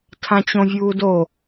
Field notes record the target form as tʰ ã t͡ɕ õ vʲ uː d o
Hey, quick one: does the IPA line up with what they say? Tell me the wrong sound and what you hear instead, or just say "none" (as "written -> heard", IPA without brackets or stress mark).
none